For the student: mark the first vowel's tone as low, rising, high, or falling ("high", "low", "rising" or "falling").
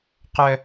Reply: high